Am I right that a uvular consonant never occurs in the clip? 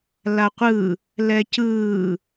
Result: no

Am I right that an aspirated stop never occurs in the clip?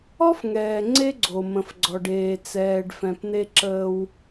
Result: yes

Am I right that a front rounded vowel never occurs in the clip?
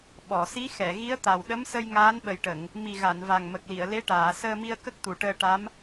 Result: yes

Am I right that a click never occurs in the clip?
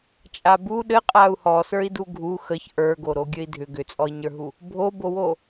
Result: yes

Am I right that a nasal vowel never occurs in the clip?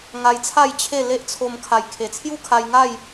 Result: yes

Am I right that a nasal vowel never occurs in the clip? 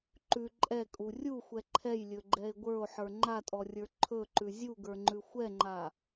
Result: yes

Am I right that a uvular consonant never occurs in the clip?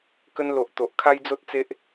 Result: yes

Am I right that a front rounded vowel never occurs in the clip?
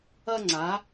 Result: yes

